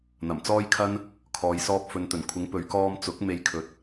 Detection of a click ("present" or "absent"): absent